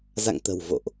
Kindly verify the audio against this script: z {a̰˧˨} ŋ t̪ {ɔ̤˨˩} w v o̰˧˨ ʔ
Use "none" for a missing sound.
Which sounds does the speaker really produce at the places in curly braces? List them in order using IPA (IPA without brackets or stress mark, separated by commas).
a̰˧˨, ə̤˨˩